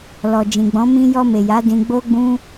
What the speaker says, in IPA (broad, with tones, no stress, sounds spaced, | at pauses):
l ɔ˨ d͡ʒ ĩ˨ ɡ͡b ɔ̃˨˦ m ĩ˧ j ɔ˧ m e˨ j a˨˦ d ĩ˧ ɡ͡b o˦ ɡ͡b ũ˦